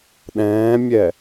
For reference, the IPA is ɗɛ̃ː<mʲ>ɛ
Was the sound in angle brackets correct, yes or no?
yes